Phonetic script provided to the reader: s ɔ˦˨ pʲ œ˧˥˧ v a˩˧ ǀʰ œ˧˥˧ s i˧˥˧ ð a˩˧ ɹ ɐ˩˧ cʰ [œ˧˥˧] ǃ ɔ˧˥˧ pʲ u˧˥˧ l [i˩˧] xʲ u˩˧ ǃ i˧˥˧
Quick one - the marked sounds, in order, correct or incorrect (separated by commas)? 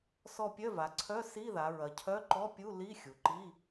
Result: correct, incorrect